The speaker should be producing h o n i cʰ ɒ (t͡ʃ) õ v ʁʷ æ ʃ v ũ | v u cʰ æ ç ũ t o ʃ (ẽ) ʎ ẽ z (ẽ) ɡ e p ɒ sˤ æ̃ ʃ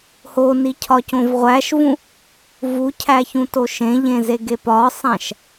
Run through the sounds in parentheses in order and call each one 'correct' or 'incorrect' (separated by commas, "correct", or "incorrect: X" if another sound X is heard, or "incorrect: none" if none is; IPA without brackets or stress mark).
incorrect: c, correct, incorrect: e